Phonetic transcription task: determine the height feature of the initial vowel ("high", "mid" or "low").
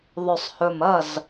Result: mid